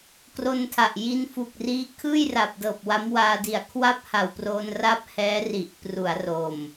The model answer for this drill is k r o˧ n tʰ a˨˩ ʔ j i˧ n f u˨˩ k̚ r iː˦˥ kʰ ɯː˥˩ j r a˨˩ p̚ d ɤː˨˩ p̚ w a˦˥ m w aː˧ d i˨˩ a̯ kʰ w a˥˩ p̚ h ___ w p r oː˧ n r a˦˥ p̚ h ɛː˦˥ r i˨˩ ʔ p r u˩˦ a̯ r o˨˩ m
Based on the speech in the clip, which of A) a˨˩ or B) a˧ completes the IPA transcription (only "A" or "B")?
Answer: A